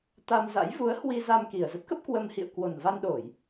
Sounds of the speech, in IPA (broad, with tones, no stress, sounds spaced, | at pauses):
t̪ a˧ m z a̰˧˥ j v u˨˦ ə̯ h w i˧ z a˧ m k i˨˩ ə̯ z ə˦˥ t̚ k ə˦˥ p̚ k w ə˧ m h ḭ˧˨ ə̯ k w o˨˩ n v a˧ n ɗ o˧˩˨ j